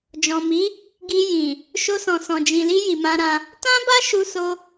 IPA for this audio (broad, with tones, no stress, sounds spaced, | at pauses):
d͡ʒ ɔ̃˨ m i˨˦ | ɡ i˧ j ĩ˨ | ʃ o˧ s ɔ̃˨ s ɔ̃˨ d͡ʒ ĩ˨ l i˧ j i˨ m ã˧ ɾ ã˧ | t ã˦ b a˦ ʃ u˧ s o˧